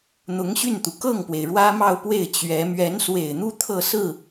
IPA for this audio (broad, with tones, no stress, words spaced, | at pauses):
n̪ʊ˧˥ŋ ɕy˥˩nt̪u˩ kɤ˥˩ŋpwe˩ɪ̯ ɻwä˥mɑ˥˧ʊ̯pwe˥˩ɪ̯ t͡ɕɥɛ˧˥ mɥɛ˧˥nswe˨˩ɪ̯n̪u˥˧ t̪ʰɤ˥˧sɹ̩˥˩